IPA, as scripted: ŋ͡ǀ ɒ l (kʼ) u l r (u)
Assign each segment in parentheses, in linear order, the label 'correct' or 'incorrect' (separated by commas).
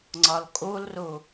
correct, correct